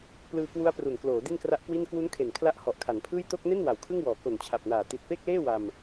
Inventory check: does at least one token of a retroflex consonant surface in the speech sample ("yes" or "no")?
no